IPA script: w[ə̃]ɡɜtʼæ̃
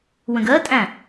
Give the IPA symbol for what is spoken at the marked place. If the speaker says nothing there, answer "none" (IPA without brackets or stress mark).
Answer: ə̃